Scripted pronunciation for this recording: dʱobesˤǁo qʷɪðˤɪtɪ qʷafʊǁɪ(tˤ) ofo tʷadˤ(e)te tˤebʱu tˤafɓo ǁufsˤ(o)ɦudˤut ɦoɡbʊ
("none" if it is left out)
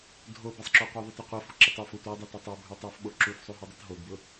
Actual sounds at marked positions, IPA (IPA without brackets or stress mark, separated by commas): tˤ, e, u